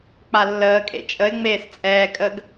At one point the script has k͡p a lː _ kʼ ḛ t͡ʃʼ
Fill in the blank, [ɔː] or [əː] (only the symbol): əː